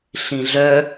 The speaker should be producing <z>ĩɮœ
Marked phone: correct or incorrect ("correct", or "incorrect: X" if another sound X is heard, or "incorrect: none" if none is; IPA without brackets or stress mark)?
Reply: incorrect: ɬ